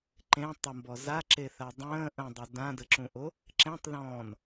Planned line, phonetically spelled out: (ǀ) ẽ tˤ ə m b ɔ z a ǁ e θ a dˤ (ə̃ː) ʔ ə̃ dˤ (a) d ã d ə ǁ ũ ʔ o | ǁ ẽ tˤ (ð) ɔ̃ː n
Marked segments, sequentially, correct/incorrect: incorrect: ǃ, correct, incorrect: ə, correct

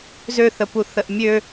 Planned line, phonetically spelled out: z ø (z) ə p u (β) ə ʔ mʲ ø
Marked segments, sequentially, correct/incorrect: incorrect: θ, incorrect: θ

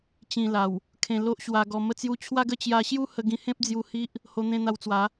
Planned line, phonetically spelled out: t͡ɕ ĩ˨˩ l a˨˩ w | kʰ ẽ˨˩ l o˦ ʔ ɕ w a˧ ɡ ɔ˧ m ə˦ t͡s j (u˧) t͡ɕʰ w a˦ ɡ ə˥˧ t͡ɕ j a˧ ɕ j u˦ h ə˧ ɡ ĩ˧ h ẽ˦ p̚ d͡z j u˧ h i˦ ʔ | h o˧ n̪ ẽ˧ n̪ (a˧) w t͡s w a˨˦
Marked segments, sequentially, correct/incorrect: correct, correct

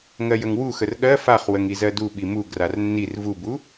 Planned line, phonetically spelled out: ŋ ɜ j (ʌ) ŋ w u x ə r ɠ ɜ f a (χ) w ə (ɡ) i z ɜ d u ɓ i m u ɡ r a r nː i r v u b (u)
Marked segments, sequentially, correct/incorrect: incorrect: ə, correct, incorrect: ŋ, correct

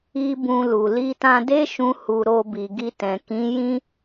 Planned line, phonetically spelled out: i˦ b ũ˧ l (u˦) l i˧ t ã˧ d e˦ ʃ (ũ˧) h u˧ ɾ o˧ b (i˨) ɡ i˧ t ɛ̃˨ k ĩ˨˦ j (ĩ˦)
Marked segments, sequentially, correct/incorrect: incorrect: u˨, correct, correct, correct

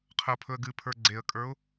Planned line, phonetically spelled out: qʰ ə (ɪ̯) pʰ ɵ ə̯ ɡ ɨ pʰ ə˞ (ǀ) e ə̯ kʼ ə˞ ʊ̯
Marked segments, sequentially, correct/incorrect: incorrect: ʊ̯, incorrect: ɡ͡ǀ

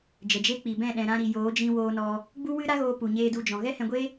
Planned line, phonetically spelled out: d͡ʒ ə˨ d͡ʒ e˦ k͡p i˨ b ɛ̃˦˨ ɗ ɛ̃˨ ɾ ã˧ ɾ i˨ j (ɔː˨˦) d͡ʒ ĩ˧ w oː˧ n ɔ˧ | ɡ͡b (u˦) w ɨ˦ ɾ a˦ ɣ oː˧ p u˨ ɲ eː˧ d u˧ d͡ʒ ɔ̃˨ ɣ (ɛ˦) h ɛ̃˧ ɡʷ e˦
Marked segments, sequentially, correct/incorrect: incorrect: oː˨˦, correct, correct

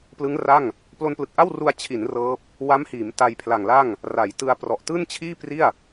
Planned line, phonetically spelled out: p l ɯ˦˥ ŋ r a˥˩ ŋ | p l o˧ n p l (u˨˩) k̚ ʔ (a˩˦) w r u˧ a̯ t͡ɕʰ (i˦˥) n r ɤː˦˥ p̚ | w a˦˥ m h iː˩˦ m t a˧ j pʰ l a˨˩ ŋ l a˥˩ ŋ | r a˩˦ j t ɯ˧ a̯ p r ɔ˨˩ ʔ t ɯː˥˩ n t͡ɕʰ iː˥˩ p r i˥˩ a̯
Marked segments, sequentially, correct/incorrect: incorrect: ɯ˨˩, incorrect: a˥˩, incorrect: i˩˦

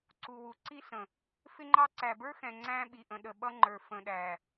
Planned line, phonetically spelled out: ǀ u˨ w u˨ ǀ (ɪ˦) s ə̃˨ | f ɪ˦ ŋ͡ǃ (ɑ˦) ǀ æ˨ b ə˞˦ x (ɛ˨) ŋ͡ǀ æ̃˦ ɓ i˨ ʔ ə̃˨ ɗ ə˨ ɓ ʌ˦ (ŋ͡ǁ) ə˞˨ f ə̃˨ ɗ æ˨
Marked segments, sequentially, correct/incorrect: incorrect: i˦, correct, incorrect: ɛ̃˨, incorrect: ŋ͡ǃ

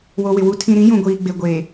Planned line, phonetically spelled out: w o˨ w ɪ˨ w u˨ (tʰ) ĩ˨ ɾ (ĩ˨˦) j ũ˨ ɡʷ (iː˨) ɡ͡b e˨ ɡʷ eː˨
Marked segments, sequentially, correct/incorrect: correct, correct, correct

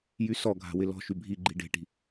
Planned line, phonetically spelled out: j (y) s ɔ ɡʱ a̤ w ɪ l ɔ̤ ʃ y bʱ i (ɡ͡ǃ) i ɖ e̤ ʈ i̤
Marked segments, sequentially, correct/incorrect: correct, correct

